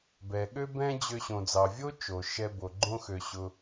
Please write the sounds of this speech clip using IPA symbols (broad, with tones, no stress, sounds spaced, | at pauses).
b ɛ˩ ɠ ø˥ b ɛ̃˥ d͡ʑ ø˧ ɕ õ˩ d͡z ɑ˩ vʲ o˥ t͡ʃ o˩ ʃ ɛ˧ b o˩ ɡ͡ǃ õ˧ x ø˩ ɕ ʊ˩